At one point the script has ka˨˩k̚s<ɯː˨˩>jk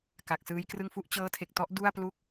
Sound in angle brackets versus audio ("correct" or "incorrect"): incorrect